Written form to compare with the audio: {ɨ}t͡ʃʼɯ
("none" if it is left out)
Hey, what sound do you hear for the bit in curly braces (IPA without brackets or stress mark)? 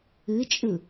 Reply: ɨ